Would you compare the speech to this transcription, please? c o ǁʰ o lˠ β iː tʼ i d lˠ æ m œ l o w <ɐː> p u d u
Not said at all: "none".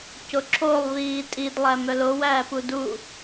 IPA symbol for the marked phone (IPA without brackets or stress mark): æː